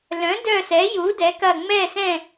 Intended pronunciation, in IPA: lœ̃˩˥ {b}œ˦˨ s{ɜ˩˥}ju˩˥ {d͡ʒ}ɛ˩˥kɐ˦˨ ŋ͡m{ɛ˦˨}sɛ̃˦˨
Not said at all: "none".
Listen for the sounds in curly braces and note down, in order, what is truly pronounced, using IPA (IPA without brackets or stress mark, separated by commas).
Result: d, ɛ˩˥, d, ɛ˦˨